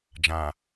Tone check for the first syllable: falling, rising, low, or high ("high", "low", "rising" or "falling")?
low